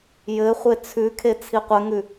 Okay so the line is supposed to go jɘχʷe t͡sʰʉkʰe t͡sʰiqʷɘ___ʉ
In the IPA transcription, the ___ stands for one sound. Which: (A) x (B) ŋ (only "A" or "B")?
B